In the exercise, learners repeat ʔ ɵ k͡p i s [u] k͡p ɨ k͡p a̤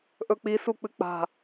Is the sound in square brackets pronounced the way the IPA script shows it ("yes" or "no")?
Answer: yes